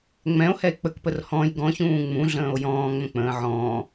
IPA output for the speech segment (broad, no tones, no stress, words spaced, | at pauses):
ŋ͡mɛ̃o̯ hɛe̯k͡pəkpər hɔ̃j ɡɔ̃çũː ŋ͡mũɮə̃ːo̯ jɔ̃ːŋ͡mə̃ k͡pə̃ː ʕɔ̃ː